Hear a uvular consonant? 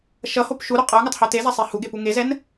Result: yes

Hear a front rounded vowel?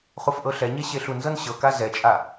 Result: no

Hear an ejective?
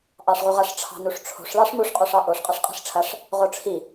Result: yes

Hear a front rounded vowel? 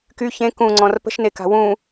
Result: yes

